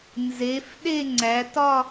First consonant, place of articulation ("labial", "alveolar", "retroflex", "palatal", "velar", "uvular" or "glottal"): alveolar